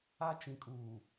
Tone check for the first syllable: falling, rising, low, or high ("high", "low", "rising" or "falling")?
high